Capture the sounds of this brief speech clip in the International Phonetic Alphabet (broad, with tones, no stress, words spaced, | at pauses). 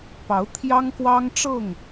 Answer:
pɑ˨˦ʊ̯t̪ʰjɑ˦ŋ kwɑ˦ŋʈ͡ʂɤ˥˨ŋ